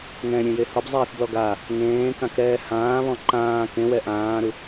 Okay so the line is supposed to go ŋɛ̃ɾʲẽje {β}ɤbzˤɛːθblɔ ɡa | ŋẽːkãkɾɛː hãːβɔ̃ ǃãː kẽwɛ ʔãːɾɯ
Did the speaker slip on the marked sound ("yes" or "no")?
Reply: yes